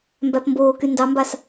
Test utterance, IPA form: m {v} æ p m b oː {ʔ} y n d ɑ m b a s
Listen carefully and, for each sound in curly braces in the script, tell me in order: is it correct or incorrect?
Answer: incorrect: b, incorrect: k

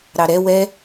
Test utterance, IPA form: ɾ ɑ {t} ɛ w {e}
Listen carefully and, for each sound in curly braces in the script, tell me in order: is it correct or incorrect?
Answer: incorrect: ɾ, incorrect: ɛ

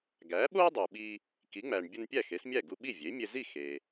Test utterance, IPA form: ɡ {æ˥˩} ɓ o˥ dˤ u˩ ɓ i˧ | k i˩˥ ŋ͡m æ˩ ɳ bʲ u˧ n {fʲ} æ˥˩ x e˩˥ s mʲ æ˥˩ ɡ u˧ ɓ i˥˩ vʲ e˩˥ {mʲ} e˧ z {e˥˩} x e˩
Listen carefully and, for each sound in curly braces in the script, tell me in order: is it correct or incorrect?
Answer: incorrect: æ˩˥, incorrect: pʲ, correct, incorrect: i˥˩

